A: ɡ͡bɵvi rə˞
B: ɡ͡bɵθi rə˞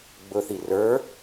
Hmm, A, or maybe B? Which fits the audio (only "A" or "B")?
B